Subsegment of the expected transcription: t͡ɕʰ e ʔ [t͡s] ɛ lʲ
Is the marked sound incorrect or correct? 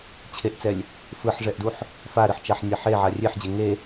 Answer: correct